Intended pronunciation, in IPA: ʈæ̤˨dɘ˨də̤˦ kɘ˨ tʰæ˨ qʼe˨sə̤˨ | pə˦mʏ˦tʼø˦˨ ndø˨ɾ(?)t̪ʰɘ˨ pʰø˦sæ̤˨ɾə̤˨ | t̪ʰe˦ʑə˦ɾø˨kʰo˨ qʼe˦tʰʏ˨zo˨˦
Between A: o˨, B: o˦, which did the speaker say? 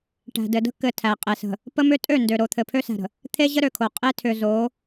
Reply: A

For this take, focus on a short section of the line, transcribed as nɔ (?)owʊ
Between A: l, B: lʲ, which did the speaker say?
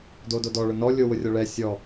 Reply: B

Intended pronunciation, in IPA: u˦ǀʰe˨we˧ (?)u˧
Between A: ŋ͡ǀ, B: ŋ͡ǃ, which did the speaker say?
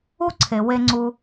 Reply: A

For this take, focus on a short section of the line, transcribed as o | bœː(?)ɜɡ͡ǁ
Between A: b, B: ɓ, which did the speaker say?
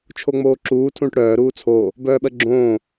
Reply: B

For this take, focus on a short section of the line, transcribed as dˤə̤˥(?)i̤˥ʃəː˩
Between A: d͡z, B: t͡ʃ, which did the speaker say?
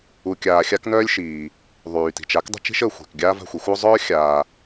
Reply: B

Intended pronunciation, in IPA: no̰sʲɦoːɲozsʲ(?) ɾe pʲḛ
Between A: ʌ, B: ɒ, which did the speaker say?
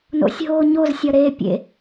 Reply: B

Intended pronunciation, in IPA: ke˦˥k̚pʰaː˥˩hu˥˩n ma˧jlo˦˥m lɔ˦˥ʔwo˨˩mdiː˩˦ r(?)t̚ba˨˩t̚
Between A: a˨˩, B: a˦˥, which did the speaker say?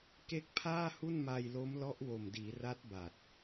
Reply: B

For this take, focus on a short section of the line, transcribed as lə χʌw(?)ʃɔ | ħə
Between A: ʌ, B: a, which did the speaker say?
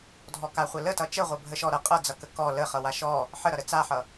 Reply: B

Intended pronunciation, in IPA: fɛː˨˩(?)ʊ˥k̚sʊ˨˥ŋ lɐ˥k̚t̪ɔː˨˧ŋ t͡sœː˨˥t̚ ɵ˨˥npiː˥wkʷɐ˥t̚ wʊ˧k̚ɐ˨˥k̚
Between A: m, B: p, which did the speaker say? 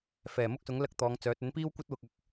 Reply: A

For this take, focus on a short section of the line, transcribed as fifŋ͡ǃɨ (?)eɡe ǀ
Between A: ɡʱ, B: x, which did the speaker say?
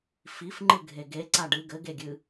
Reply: A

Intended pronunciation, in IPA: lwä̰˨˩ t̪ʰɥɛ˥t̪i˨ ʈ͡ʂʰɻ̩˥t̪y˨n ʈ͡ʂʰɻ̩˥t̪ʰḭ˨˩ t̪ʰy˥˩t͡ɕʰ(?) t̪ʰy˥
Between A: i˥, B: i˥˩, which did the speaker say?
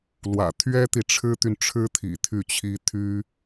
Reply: A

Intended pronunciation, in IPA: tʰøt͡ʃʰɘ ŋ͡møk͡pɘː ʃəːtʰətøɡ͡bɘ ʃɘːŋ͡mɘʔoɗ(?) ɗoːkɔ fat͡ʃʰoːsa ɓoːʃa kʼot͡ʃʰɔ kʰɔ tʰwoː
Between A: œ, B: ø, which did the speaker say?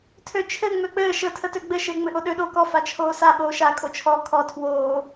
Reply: B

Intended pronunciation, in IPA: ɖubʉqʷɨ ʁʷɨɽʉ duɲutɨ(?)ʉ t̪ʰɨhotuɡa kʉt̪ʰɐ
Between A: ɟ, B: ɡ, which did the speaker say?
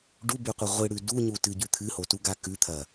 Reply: A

